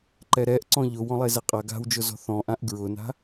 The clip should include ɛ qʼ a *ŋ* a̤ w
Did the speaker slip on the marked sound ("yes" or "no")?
yes